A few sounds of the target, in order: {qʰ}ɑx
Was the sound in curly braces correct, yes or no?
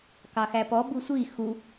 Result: no